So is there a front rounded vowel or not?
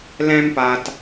no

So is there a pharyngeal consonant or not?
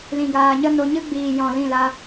no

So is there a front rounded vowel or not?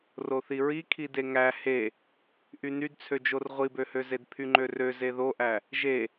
yes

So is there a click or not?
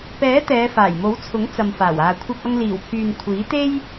no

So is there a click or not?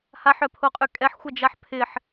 no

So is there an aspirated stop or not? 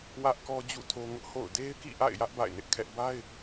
yes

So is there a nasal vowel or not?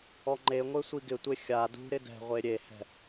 no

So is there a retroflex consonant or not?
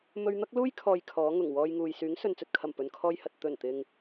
no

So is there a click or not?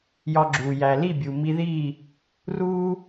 yes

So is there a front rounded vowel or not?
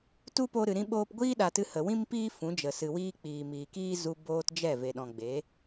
no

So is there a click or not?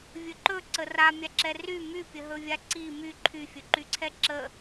yes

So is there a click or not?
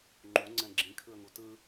yes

